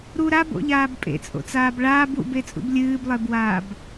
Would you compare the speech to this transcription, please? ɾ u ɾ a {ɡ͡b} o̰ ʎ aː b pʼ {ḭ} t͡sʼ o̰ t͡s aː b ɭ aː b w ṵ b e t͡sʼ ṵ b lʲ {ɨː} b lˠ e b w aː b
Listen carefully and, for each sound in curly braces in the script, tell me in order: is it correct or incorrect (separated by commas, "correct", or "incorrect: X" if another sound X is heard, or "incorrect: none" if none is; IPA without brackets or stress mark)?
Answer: incorrect: b, incorrect: ḛ, correct